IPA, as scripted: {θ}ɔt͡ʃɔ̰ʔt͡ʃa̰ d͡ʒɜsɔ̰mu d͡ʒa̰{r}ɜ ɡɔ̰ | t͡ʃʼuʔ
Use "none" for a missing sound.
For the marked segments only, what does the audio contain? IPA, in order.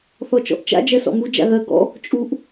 θ, ɣ

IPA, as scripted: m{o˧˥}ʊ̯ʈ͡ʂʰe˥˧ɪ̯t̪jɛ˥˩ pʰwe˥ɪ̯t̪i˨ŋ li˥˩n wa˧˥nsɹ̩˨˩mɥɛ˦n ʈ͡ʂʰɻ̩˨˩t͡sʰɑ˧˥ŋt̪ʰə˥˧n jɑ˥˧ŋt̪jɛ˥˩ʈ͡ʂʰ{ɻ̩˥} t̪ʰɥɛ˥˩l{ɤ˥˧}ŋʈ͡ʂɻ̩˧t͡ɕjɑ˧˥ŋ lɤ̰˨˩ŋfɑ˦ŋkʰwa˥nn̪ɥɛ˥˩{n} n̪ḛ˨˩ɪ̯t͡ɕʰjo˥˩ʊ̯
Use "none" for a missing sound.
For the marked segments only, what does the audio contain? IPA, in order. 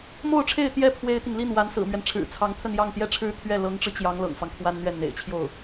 o˥˧, ɻ̩˥, ɤ˧˥, n

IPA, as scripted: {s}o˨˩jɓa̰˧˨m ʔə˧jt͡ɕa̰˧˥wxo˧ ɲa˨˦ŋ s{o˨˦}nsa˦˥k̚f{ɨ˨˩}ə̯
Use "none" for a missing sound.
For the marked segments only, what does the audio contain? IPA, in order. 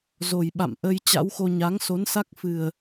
z, o˨˦, ɨ˨˩

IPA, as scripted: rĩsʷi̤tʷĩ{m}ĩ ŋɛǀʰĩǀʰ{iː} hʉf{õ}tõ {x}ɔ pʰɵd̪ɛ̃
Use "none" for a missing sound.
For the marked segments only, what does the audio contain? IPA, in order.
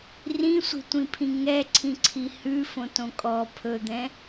pʰ, i, õ, kʼ

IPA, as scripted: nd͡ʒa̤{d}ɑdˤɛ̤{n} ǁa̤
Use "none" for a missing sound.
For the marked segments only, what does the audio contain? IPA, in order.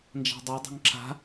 dˤ, ŋ

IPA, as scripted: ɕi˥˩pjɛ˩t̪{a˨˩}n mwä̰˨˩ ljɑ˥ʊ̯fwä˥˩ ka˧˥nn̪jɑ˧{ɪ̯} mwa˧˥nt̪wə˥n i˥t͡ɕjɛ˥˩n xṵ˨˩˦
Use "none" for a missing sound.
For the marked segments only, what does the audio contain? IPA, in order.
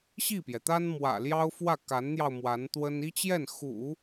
a˥, ʊ̯

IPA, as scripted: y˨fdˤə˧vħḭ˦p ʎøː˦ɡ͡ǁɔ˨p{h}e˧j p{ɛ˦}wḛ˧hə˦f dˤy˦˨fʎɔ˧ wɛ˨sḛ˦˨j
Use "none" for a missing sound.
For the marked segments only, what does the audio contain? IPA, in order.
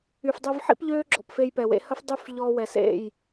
f, ɛ˨

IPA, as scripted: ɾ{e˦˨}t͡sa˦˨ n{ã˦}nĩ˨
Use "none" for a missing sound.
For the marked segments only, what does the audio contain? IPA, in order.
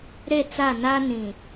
e˦˨, a˦

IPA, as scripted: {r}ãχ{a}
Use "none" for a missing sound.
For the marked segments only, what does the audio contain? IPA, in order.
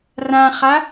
r, a

